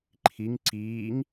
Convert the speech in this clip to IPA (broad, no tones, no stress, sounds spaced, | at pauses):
ǃʰ i ŋ ǀ iː ŋ